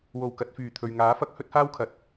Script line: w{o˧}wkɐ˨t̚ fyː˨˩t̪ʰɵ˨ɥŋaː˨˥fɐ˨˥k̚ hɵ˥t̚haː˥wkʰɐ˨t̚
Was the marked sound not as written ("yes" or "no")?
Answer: yes